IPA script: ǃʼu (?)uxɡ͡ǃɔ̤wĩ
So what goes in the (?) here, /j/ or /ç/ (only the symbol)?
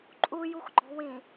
j